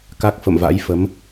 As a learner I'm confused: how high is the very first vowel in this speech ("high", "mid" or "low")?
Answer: low